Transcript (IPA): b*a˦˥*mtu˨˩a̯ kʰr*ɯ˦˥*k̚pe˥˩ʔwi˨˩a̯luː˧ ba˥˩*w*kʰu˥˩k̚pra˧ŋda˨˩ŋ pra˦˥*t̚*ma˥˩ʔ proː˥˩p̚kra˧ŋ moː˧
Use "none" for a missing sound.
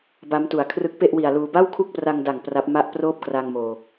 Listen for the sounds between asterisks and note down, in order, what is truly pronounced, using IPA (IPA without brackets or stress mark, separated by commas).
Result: a˦˥, ɯ˦˥, w, p̚